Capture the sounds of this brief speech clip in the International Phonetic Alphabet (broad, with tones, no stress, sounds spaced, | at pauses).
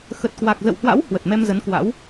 x ə˨˩ t̚ k w a˨˩ k̚ z ə̰˧˨ w h w a̰˧˥ w h w ə˨˩ t̚ m ɛ˧ m z ə˨˦ n k w a̰˧˥ w